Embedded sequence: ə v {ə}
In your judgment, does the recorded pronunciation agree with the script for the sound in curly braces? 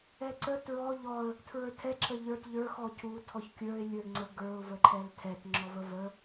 yes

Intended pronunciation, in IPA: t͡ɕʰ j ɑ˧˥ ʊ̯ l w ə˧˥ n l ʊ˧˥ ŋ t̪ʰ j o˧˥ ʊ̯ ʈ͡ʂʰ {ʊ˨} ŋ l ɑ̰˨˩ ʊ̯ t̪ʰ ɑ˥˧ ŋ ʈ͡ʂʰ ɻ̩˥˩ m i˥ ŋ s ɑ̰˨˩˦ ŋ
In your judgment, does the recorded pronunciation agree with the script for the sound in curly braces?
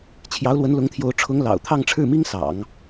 no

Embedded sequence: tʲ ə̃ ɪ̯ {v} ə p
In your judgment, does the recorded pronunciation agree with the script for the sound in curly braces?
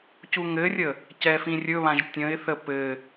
no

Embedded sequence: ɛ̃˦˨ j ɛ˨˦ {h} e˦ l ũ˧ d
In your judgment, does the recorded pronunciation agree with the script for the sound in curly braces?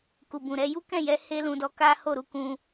yes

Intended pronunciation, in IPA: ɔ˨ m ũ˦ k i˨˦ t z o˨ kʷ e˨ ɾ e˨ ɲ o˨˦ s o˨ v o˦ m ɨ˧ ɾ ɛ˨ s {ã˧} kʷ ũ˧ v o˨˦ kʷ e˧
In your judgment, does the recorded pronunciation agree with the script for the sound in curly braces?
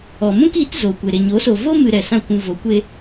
no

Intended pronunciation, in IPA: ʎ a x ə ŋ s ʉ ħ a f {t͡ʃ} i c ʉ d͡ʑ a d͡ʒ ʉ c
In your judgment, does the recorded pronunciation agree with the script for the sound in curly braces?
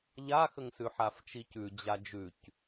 yes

